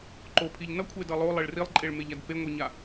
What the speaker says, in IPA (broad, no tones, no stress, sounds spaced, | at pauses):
ǃ o pʰ i ʎ n ʌ kʷʰ e d ʌ lˠ o lˠ e ɭ r i lˠ ǃʼ e ɭ m e ʎ a d p e ŋʷ i ɲ a